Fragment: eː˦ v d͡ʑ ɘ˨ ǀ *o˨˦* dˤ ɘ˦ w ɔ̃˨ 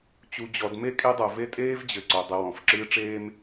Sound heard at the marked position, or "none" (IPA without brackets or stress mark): o˨